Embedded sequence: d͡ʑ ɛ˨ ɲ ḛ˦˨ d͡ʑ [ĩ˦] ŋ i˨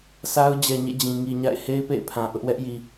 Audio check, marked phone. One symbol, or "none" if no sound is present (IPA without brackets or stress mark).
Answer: ĩ˨